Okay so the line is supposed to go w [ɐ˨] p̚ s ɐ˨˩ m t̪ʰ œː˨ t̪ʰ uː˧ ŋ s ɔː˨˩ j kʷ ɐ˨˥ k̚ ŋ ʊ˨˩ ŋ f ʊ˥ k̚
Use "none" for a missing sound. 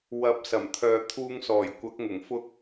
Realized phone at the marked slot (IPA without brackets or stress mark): ɐ˨˥